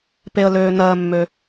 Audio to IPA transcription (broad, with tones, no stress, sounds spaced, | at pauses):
p e˩ ə̯ l øː˩ n̪ ɜː˩ mː ø˩